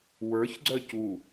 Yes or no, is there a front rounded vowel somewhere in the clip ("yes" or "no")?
yes